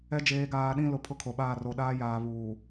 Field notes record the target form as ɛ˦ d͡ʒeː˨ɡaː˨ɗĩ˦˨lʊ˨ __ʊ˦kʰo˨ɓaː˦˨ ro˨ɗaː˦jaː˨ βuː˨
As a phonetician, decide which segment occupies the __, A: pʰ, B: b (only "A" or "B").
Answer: A